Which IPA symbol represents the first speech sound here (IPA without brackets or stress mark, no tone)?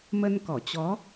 m